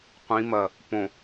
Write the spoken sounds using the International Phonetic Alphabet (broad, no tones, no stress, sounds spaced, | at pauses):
qʷ ĩ m ɐ | p õ